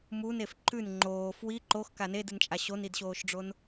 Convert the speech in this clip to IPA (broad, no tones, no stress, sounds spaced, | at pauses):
m u n e f ǃ ʉ n ŋ͡ǃ oː f w i ǃ o x k a n e d ɨ n t͡ʃʼ a ɕ o n i d ɕ oː ʃ ɖ͡ʐ o n